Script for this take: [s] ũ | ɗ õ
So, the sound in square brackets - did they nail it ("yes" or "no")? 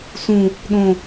yes